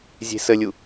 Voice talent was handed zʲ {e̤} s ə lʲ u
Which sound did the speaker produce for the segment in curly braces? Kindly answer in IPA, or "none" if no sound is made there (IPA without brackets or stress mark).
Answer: e̤